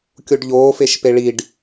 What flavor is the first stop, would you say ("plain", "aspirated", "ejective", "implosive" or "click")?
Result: plain